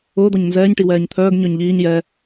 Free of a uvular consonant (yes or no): yes